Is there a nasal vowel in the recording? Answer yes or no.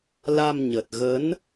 no